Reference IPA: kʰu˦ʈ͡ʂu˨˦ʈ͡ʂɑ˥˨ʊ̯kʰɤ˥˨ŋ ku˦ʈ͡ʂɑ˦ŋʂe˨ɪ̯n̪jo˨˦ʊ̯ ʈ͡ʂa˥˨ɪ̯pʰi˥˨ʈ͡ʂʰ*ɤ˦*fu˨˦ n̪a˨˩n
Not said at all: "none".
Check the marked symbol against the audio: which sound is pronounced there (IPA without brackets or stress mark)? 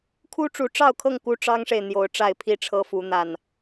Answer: ɤ˦